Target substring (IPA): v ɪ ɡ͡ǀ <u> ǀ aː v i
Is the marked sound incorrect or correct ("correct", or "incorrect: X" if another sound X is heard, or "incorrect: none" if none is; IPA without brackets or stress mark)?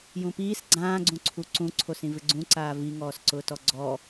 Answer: incorrect: ũ